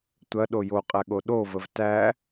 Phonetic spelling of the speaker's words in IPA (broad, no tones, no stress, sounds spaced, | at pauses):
tʷ ɐ ɗ o j o qʼ æ ɠ o ɗ o v ə v t æ